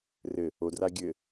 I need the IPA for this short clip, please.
r ɘ | o d r a ɡʲ ɘ

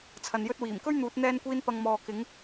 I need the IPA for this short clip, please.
t͡sʰ ɐ˨ n j ɵ˧ t̚ w iː˨˩ m k ɵ˥ ɥ n̪ uː˨˥ t̚ n̪ ɛː˥ n kʷ iː˥ n p ɐ˧ ŋ m ɔː˨ k ɪ˨˥ ŋ

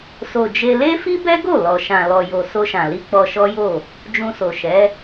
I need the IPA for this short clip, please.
s o˨ d͡ʒ e˧ l e˦ f i˦ b ɛ˦ ɡ o˦˨ l ɔ˨ ʃ ã˨ l ɔ˨ j o˨ s o˧ ʃ ã˨ l i˧ k͡p ɔ˧ ʃ ɔ˦ j o˦˨ | d͡ʒ ũ˧ s o˨ ʃ ɛ˨˦

